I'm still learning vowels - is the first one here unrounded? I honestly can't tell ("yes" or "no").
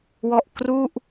no